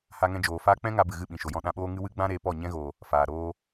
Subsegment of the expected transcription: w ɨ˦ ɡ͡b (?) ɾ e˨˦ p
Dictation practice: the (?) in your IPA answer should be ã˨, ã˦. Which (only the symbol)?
ã˦